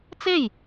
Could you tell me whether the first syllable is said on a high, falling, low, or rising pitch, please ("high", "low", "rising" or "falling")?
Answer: falling